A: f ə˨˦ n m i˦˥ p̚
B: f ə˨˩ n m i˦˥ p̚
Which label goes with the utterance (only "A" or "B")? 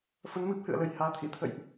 A